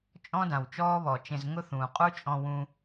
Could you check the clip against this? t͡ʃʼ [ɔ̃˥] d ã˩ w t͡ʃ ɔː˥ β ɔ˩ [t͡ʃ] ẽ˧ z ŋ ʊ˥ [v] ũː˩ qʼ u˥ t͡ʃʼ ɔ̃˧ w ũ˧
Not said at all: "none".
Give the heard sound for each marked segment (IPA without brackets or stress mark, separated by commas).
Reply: ɔ̃˥, t͡ʃ, θ